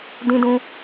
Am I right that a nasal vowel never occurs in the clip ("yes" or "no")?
no